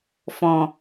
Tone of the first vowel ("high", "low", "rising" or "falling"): low